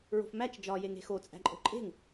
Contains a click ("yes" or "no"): yes